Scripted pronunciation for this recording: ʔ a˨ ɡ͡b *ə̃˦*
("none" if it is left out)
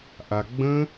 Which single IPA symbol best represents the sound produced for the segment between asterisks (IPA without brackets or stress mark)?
ə̃˦